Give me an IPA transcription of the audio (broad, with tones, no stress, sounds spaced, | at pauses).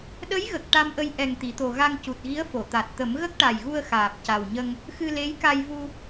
ɗ ə˧˥ j ɣ ə˨˩ k̚ ʈ a˧ m ʔ ə˧ j ʔ ɛ˨˩ ŋ t̪ i˨˩˨ t̪ o˨˩ ɣ a˧ ŋ c u˨˩ t̚ ɣ i˧˥ ə̯ f o˨˩˨ t̪ a˨˩ t̚ t̪ ə˨˩˦ m ɣ ə˦˥ k̚ ʈ a˨˩ j ɣ u˧ ə̯ x aː˨˩ p̚ c a˨˩ w ɲ ə˧ ŋ | x ɨ˧ l e˧˥ j k a˧ j v u˧